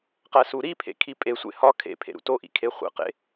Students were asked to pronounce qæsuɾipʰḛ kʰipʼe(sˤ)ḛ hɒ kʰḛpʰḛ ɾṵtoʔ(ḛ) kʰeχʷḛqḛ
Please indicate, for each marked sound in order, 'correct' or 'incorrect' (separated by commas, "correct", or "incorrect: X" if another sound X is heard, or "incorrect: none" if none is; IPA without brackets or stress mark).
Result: incorrect: sʷ, incorrect: ḭ